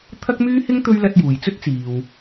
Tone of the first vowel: high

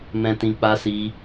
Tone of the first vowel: low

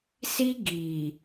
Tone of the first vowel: high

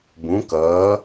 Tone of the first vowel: rising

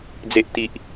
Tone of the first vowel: low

